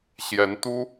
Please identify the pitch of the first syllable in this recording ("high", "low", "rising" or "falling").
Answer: rising